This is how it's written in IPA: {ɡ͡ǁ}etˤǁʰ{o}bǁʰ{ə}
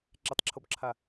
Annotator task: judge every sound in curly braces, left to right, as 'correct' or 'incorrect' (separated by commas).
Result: incorrect, correct, incorrect